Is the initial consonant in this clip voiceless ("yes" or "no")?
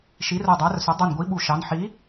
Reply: yes